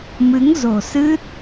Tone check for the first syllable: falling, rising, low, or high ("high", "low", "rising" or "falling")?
rising